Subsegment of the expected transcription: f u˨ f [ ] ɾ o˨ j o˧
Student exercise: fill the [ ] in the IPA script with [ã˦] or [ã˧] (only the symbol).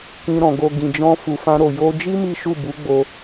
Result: ã˧